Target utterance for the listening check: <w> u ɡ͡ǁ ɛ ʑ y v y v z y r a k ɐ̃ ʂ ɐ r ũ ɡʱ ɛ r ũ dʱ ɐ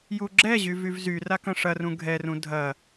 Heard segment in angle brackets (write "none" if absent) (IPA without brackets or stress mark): j